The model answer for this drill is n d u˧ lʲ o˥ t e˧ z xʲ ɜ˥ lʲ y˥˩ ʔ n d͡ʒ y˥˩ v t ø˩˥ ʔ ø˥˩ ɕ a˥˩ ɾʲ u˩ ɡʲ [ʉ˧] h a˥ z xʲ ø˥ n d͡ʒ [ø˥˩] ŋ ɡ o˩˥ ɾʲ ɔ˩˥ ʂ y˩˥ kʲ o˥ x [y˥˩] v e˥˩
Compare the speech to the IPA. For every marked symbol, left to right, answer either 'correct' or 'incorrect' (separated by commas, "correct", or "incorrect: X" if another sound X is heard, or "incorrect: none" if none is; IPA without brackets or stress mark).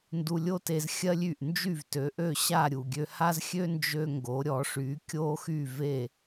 incorrect: ø˧, incorrect: ø˧, correct